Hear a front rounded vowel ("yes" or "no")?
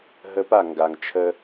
no